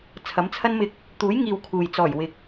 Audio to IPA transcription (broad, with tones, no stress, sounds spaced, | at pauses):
t͡sʰ ɐ˨˥ m t͡sʰ ɐ˥ n m ɪ˧ k̚ | t̪ uː˨˥ j ŋ iː˨ w kʰ uː˨ j t͡s ɔː˨˩ j w ɪ˨ k̚